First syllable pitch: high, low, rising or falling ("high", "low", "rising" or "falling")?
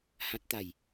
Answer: high